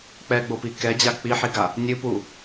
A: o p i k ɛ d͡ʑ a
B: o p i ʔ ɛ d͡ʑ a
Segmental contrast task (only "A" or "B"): A